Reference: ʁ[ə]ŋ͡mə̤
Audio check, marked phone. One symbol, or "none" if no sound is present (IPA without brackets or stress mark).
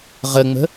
ə